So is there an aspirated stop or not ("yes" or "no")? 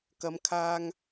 yes